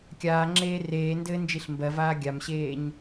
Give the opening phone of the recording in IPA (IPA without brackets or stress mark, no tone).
kʲ